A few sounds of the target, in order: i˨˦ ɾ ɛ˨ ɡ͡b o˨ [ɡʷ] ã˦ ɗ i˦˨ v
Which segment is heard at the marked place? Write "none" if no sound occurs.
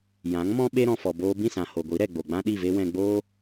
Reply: ɡ͡b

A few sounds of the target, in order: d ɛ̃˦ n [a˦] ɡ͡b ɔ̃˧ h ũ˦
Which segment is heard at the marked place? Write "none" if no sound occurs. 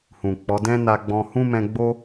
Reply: a˧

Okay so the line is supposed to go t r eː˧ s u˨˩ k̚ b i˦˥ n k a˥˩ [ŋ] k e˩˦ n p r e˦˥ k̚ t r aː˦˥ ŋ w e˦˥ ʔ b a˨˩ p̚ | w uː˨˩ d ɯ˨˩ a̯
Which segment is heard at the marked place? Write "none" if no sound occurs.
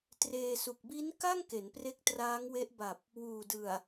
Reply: ŋ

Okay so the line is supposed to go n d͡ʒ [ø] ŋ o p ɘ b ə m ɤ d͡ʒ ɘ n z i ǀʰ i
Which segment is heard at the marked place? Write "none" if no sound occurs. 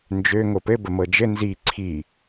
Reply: ø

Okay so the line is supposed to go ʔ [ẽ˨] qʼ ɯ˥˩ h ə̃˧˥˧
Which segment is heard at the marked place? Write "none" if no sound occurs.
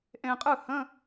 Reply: ẽ˨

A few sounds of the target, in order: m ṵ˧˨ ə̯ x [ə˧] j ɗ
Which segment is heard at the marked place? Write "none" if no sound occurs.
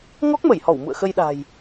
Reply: ə˧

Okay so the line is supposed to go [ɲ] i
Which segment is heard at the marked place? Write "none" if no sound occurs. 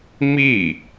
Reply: m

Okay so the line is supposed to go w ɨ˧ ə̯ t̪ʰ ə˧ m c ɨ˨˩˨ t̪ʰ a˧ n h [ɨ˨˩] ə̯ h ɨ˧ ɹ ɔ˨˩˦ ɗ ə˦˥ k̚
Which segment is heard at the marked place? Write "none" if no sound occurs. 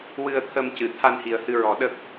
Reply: i˨˩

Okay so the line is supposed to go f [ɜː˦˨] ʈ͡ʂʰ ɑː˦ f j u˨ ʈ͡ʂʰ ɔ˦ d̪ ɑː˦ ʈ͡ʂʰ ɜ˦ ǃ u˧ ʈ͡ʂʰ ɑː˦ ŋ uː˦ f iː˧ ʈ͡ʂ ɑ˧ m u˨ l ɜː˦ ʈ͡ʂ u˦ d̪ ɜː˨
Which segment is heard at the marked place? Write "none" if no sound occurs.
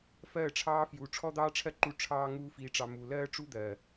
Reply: ɜː˦˨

